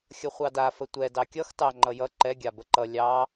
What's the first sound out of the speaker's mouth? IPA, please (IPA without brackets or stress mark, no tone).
xʲ